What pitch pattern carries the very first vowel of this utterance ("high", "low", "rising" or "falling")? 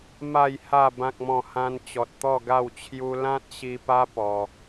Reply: low